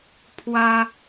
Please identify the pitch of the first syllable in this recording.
high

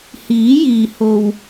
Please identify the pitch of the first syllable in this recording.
rising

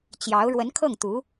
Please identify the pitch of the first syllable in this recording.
rising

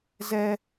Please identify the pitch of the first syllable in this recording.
high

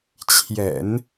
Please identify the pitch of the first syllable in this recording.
low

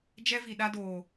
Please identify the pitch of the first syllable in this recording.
high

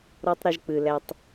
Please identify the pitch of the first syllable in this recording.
high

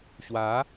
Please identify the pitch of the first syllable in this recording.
rising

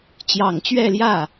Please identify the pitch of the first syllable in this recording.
low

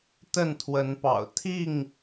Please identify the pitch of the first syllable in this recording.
falling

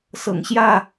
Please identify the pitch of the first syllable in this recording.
low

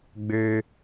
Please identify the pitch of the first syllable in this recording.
high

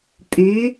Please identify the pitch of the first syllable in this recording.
rising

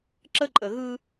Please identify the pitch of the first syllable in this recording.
high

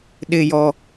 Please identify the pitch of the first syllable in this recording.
low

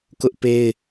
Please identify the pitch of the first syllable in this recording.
high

